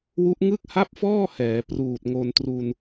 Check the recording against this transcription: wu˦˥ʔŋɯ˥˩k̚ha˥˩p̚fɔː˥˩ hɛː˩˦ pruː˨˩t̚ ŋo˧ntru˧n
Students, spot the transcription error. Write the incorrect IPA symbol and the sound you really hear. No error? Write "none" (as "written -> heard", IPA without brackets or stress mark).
none